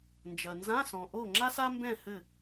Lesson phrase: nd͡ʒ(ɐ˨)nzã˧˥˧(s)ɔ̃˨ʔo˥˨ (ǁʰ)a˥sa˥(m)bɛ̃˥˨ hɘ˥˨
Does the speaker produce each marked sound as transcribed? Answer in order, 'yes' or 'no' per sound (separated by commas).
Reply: yes, yes, no, yes